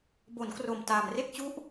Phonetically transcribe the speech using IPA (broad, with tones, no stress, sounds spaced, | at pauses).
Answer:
b o˩˦ n k r o˨˩ m t aː˨˩ m r e˥˩ k̚ t͡ɕ u˦˥ ʔ